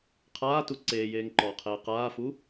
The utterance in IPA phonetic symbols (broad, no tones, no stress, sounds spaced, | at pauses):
qʰ aː t u ǀ eː j eː ŋ ǃ ɔː qʰ eː q aː f u